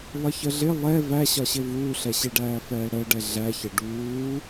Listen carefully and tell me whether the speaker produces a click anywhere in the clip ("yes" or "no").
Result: no